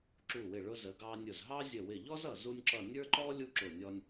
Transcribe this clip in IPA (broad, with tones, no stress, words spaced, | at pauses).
ǁu˧˩wɪ˧˩ ɭʊ˧ zə˩˧ɡɑ˧nʲʊ˧˩zɦɑ˥ zʲə˧˩wɪ˧˩ ʎɔ˥zʌ˧˩ zu˧nʲǁʌ˧˩ nʲə˞˥ǃɔ˥ lʲu˥ǁʊ˧˩nʲɔ˧nʲ